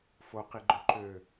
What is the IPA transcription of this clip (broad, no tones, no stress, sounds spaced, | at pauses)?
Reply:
f o q i ɡ͡ǃ ø ǃ ø